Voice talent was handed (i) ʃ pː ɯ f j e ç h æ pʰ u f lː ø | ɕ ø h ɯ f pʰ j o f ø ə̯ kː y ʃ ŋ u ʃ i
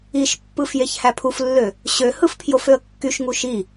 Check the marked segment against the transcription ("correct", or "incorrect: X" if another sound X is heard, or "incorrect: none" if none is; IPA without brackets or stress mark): correct